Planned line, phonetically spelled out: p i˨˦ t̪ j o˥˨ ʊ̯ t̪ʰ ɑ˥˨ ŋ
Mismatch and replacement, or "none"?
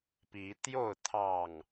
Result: none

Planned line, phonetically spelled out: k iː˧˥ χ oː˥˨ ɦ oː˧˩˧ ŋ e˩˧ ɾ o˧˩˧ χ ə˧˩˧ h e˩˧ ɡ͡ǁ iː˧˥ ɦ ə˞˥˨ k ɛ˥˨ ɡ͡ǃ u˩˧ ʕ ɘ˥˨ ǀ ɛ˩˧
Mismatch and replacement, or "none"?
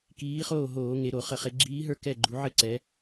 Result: h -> χ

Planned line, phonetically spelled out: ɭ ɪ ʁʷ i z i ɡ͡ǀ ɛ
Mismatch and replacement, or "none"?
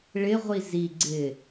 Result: ɛ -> ɪ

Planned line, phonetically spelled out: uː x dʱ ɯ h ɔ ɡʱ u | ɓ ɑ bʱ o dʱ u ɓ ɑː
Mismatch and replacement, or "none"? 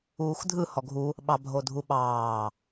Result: none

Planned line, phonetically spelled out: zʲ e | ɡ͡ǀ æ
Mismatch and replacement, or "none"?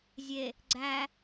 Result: none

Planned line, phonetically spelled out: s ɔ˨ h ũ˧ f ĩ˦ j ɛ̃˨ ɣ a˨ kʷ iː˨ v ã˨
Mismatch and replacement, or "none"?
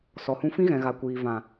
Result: j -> ɣ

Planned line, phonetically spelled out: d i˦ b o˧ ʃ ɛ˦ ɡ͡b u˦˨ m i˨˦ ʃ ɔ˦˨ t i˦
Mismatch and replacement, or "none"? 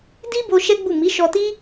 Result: ɔ˦˨ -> ɔ˧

